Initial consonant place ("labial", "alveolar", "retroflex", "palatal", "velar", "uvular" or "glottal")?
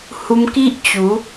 glottal